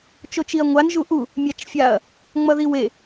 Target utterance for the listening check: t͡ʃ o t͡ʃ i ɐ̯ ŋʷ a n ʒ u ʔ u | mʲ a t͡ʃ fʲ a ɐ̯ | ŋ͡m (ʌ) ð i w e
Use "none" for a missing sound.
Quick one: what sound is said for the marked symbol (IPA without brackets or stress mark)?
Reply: ʌ